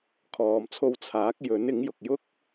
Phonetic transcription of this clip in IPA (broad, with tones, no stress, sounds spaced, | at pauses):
kʰ ɔː˨ m t͡sʰ o˧ w t͡sʰ aː˨˥ k̚ j ɵ˨˥ n ɪ˨˥ ŋ j ʊ˨ k̚ j ʊ˥ k̚